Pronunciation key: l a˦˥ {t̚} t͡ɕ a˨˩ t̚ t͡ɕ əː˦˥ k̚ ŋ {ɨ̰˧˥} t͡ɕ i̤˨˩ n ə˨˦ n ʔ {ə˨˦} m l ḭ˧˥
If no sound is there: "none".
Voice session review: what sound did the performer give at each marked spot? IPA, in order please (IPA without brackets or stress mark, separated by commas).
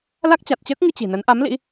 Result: k̚, ɨ˧, a˨˦